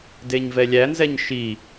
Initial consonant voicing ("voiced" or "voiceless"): voiced